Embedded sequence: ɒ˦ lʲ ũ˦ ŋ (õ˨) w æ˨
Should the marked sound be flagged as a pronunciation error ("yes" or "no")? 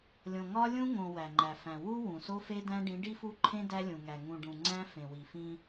no